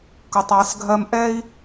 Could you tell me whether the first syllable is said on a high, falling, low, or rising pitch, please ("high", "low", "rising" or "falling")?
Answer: low